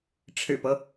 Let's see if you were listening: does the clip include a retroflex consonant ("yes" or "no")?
yes